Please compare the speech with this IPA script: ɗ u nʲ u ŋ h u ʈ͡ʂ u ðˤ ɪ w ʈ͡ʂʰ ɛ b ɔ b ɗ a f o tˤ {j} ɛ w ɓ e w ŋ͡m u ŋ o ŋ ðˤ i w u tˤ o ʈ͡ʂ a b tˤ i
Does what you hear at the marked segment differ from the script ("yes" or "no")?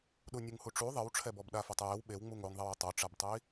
no